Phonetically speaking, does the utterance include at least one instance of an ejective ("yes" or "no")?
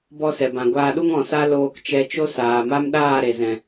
no